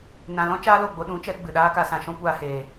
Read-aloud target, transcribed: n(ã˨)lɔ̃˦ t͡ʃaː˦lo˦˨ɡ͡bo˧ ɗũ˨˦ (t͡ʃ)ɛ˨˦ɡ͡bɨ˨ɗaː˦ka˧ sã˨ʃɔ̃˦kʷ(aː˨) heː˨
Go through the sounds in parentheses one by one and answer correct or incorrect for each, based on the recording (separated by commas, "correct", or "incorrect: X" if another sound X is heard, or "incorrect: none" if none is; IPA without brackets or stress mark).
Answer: correct, correct, incorrect: aː˧